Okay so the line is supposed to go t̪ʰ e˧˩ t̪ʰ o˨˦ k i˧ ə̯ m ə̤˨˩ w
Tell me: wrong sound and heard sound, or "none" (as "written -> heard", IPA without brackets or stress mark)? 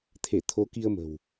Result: none